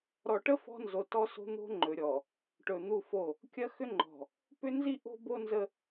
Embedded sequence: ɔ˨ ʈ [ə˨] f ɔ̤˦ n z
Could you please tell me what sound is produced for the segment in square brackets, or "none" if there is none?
ə˦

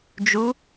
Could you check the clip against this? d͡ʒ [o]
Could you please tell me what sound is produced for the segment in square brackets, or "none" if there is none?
u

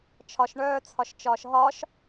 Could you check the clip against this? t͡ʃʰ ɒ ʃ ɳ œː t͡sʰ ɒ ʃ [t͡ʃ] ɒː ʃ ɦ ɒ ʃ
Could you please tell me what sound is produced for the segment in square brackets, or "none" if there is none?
t͡ʃ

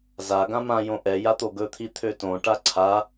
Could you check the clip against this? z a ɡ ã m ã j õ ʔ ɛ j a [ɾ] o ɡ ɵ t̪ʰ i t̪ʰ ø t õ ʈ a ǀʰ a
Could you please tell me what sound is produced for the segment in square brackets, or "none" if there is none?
t̪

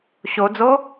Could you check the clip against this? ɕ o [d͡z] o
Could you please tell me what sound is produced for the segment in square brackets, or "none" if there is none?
d͡z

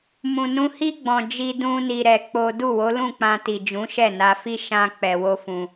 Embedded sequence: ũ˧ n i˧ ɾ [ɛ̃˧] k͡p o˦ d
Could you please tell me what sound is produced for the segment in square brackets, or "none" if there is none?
ɛ˧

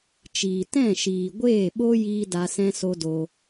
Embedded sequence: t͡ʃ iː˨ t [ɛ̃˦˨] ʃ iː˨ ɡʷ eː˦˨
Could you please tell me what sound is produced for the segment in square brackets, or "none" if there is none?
ɛ̃˦˨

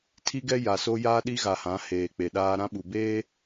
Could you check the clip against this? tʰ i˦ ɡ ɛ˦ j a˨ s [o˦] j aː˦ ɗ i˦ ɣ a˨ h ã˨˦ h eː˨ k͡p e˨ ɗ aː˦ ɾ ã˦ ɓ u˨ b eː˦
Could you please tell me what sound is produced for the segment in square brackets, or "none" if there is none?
o˦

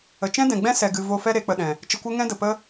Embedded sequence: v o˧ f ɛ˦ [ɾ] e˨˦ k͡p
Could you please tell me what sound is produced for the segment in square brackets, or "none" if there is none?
ɾ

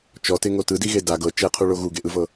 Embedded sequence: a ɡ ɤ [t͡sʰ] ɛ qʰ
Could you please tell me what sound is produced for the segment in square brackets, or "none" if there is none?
t͡ʃ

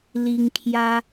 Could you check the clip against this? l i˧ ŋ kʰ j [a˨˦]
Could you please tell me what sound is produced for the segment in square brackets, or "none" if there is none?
a˦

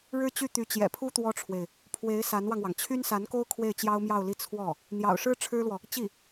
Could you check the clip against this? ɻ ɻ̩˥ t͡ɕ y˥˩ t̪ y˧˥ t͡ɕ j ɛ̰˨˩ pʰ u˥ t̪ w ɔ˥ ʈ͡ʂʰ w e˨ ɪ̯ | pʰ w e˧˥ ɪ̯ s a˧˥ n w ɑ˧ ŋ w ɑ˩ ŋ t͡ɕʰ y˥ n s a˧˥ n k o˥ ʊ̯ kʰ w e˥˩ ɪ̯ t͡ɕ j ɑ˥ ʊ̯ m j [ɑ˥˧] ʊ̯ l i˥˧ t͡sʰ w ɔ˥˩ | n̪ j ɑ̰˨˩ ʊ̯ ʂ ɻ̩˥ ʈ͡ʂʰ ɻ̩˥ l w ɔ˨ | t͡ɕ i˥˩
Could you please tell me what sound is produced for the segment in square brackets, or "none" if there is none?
ɑ˥˧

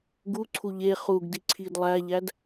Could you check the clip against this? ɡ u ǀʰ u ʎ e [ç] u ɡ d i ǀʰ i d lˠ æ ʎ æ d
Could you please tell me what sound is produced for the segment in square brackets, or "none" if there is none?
χ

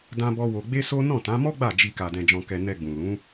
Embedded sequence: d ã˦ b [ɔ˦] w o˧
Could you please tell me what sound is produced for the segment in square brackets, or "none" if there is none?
ɔ˦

